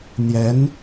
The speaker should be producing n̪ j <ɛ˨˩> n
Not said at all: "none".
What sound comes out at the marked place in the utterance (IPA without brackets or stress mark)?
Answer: ɛ˧˥